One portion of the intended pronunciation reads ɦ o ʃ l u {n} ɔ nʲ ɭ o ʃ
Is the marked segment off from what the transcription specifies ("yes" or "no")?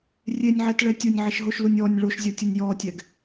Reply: yes